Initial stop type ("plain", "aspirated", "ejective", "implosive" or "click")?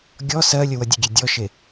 plain